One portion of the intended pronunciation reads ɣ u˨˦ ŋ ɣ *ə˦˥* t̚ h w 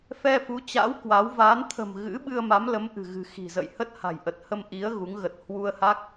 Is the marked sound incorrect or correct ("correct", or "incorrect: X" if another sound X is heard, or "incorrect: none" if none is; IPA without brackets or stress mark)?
incorrect: ə˨˩